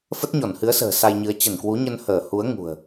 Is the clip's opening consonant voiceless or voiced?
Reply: voiceless